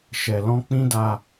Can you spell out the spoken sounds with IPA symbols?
ʃɛ˨lɔ̃˧ k͡pĩ˦da˧

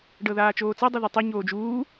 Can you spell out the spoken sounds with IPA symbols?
ɖɤðaːt͡ʃoːt͡sɤ dˤuðɤtˤi ɲoːd͡ʒuː

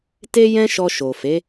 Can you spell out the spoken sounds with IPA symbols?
te˦jɛ̃˦ ʃɔ˧ʃo˨fe˨˦

